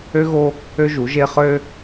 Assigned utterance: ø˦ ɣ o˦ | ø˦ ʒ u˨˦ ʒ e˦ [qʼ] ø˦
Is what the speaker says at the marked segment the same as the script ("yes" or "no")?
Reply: no